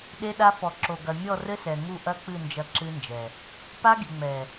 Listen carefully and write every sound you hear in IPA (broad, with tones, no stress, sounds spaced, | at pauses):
ɗ e˦ ɗ a˦ f ɔ˨ ǁ o˨ ɡ ɐ˨ mʲ ɔ˦˨ r ɘ˦ s ɛ˨ ŋ u˦˨ ʔ ɐ˦ k͡p ɨ˦˨ n d͡ʒ ɐ˦ ǁ ɨ˦ n d͡ʒ ɛ˨ | p a˦ ɡ i˨ ŋ͡m ɛ˨